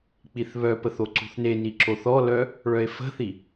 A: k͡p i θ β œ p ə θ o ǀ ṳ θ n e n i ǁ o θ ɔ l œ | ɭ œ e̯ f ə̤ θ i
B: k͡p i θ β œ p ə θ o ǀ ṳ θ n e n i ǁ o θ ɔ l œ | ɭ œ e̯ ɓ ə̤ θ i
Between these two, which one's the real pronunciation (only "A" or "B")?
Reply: A